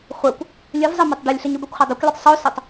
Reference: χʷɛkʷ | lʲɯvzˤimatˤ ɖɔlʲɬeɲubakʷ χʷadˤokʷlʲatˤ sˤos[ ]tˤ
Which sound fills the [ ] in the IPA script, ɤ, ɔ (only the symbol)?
ɤ